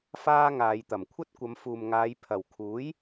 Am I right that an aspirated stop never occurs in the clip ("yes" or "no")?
no